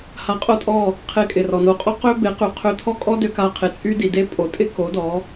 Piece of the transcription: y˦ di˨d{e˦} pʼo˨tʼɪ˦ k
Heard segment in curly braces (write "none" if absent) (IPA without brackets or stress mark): e˦